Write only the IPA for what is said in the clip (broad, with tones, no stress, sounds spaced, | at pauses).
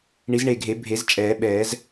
ɳ i˨˩˦ z ɳ e˨˩ ɡʱ e˨˩˦ bʱ e˨˩˦ z t͡ʃʼ ɛː˨˩˦ ɓ ɛː˨˩˦ z